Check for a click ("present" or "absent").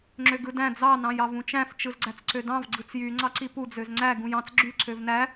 present